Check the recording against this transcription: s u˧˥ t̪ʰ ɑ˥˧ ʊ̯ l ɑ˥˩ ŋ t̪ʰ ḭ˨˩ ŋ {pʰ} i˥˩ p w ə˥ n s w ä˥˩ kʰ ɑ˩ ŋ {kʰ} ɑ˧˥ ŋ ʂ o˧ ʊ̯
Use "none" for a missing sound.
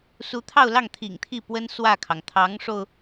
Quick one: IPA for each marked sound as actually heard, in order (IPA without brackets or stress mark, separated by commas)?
t̪ʰ, t̪ʰ